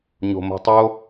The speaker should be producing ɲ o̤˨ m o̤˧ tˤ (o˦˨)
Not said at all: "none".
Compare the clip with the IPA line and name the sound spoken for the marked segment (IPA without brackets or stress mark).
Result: o˦